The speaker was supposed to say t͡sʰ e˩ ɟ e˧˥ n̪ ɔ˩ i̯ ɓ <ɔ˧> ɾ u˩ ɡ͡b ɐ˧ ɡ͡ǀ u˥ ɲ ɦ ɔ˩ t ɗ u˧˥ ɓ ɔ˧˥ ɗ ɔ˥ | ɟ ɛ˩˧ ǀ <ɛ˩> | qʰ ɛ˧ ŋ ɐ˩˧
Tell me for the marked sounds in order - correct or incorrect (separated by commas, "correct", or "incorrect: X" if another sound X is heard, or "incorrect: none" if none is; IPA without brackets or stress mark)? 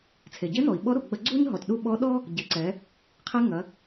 incorrect: ɔ˧˥, incorrect: ɛ˩˧